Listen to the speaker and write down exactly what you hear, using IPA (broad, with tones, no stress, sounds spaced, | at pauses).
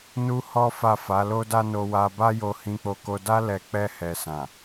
n u˦ h ɔ˦ f a˦˨ f a˨˦ l o˧ d a˧ n o˧ w a˧ b a˦ j o˧ h ĩ˧ k͡p o˧ k o˧ d a˦ l ɛ˧ k͡p ɛ˧ h ɛ˨ s ã˨